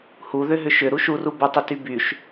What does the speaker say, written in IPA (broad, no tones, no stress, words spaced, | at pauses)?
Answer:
hu ðʏɦʏʃʏ ɾuʃuru bətˤʏty byʃ